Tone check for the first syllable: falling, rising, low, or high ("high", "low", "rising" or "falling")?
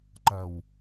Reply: low